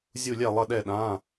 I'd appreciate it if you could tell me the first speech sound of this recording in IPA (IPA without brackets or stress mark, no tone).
zʲ